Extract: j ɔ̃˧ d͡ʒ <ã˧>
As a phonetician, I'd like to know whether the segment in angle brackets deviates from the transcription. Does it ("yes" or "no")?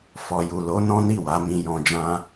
yes